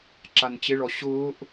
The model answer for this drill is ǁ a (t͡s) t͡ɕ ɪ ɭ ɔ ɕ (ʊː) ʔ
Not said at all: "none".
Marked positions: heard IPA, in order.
n, ʊː

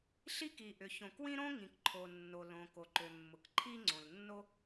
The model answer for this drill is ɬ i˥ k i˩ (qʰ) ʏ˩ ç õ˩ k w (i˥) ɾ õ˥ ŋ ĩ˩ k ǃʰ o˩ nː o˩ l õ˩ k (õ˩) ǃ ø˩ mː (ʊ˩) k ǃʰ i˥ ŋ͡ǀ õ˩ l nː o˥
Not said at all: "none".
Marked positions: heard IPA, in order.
ʔ, ĩ˥, o˩, ʊ˩

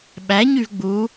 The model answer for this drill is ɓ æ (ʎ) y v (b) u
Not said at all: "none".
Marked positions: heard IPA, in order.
ɲ, ɡ͡b

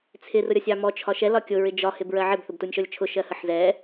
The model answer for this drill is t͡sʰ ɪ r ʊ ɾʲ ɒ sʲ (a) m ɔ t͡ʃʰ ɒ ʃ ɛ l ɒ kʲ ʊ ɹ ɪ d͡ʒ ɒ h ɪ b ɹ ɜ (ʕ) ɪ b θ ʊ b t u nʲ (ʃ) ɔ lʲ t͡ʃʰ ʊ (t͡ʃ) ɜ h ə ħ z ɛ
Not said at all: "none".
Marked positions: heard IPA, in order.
ɑ, ʕ, ʃ, ʃ

